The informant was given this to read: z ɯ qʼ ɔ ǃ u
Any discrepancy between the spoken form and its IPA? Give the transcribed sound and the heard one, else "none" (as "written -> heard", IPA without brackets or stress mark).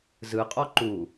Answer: none